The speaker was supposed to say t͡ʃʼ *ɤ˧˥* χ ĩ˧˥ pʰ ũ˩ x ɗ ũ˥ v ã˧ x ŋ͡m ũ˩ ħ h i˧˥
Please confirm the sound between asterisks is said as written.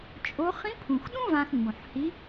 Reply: no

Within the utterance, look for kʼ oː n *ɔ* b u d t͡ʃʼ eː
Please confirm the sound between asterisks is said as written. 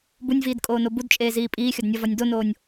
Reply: no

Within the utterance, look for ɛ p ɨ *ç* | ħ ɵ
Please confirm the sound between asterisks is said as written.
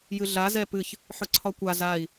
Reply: yes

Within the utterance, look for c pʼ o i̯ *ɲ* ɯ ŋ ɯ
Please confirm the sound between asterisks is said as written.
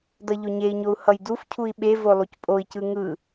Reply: no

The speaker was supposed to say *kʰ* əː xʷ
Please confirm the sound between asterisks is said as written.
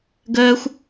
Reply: no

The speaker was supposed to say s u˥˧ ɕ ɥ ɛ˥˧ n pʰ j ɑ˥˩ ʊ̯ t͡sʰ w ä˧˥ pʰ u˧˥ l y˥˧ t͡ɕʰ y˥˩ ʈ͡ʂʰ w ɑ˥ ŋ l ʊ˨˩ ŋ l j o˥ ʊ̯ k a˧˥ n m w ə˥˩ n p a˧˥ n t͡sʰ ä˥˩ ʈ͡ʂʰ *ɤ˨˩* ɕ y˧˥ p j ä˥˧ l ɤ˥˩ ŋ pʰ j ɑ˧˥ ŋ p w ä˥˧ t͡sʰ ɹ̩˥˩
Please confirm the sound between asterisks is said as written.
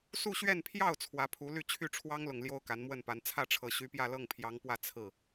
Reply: yes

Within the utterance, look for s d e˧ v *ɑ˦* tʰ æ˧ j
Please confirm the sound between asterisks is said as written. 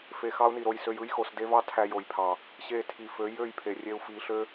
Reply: yes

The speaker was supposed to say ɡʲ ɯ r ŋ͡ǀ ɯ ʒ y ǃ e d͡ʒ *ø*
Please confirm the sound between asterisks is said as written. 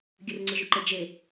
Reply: no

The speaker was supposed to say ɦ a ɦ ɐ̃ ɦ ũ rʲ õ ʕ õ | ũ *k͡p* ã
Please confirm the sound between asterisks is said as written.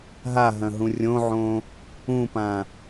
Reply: no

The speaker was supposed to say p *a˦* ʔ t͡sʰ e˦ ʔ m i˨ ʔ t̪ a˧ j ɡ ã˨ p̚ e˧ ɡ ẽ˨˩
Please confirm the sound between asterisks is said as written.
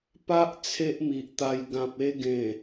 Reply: yes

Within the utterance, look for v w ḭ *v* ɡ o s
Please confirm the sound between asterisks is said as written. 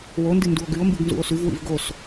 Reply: yes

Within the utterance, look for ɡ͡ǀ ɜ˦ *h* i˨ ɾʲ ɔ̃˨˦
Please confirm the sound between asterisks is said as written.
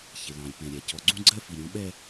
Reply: no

